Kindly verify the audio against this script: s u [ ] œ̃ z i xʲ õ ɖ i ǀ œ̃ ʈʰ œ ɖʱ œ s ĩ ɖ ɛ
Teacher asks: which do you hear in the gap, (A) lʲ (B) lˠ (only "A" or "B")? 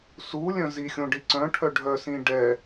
A